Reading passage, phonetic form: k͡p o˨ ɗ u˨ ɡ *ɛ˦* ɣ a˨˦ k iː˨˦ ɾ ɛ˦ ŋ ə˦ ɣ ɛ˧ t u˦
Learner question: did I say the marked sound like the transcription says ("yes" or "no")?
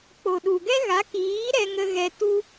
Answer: yes